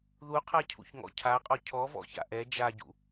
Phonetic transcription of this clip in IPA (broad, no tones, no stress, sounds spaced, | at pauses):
ð u qʰ a cʰ ṵ ç ŋ ɔ̰ cʰ a qʼ ɔ cʰ ɔ v ɔ̰ ç a̰ ʔ ɛ d͡ʒ a ɟ ṵ